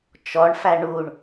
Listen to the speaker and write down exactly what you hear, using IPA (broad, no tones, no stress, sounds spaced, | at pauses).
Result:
t͡ʃ ɔ ɳ f æ ɳ u ɳ